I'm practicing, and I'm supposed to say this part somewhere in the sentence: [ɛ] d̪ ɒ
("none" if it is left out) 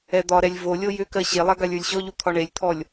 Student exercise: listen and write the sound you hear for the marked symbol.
ɛ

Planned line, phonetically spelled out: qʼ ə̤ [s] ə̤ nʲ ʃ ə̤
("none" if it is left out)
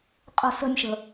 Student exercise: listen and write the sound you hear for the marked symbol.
s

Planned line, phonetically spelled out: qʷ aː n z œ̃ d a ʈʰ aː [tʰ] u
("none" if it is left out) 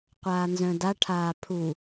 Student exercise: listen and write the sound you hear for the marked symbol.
pʰ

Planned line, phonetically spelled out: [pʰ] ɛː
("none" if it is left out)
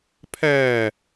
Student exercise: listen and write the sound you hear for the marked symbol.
pʰ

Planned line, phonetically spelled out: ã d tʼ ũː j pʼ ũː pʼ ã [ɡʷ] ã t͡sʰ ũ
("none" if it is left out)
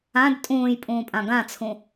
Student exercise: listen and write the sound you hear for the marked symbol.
ɡ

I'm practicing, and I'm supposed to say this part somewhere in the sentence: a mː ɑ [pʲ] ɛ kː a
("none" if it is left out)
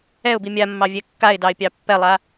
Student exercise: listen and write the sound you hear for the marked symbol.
vʲ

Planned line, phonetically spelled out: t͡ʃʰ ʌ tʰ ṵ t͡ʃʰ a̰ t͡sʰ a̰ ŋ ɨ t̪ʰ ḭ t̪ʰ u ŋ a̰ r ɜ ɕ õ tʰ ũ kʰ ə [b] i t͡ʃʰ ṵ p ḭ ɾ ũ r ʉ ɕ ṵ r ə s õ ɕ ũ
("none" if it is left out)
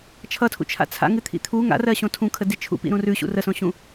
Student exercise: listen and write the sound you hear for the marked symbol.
d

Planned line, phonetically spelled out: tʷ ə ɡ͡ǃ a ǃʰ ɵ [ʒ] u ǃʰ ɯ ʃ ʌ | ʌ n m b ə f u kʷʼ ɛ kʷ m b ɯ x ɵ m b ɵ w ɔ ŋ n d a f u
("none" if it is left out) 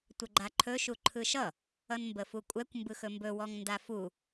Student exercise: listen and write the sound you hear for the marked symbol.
ʃ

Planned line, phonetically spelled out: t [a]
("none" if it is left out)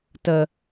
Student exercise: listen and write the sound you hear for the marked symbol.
ə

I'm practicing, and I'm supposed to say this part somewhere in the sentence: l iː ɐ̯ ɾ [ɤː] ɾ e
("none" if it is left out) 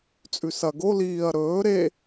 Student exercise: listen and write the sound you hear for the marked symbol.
ɵː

